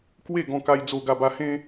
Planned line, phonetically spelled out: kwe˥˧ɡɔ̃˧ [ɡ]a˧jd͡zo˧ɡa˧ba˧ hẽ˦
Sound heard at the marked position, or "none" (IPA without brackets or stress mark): k